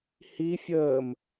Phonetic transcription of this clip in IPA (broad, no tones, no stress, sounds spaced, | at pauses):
h i fʲ əː m